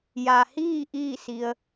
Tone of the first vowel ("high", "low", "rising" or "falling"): low